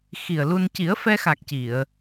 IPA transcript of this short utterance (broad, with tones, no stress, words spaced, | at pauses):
xi˨˩ə̯lu˧n ci˨˩˦ə̯fɛ˧xa˨˩k̚ ci˨˩˨ə̯